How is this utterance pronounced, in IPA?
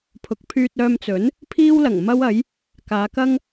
pʰ ʊ˨ k̚ pʰ yː˧ t̚ œː˧ m t͡s ɵ˨˥ n | pʰ iː˥ w l ɐ˨˩ ŋ m ɐ˥ w ɐ˨˥ j | k aː˨˧ k ɐ˥ ŋ

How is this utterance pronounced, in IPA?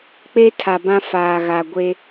k͡p e˦ tʰ a˨ b ã˦ f aː˨ ɣ a˨ ɡʷ e˦

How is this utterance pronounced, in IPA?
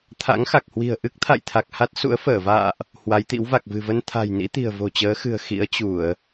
t̪ʰ a̰˧˥ ŋ x a˨˩ k̚ h w i̤˨˩ ə̯ ʔ ɨ˦˥ k̚ t̪ʰ a̰˧˨ j t̪ʰ a˨˩ k̚ h a˦˥ t̚ s ṵ˧˥ ə̯ f əː˧˩ v a̰ː˧˨ ʔ | h w a˨˦ j t̪ ḭ˧˥ w v a˨˩ k̚ v ɨ̤˨˩ v ə˧ n t̪ʰ a̤˨˩ j n ḭ˧˥ t̪ i̤˨˩ ə̯ v o̤˨˩ t͡ɕ əː˨˦ x ɨ̤˨˩ ə̯ x ḭ˧˥ ə̯ t͡ɕ u˧˩˨ ə̯

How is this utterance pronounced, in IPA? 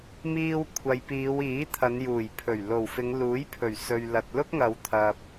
m iː˧ w kʷʰ ɐ˨ j p iː˨˧ w iː˨˥ t̪ʰ ɐ˨˧ n j uː˨˩ j pʰ ɵ˨˩ ɥ l o˨˩ w f ɪ˨˧ ŋ l uː˨˥ j pʰ ɵ˨˩ ɥ s ɵ˧ ɥ l ɐ˧ t̚ l ʊ˥ k̚ ŋ ɐ˨˧ w t̪ʰ ɐ˧ p̚

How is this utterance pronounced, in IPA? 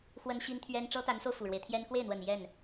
x w ə˥ n ɕ i˥ n t̪ʰ ɥ ɛ˥ n ʈ͡ʂ ɤ˥ t̪ a˧˥ n s o˧ ʊ̯ f u˨˩ ɻ w e˦ ɪ̯ t̪ʰ j ɛ˥ n k w e˥˩ ɪ̯ n̪ w ə˨˩ n j ɛ˥˩ n

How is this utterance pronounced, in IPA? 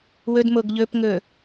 w ɵ d m o ɡ ʎ ɵ p ŋ ɵ

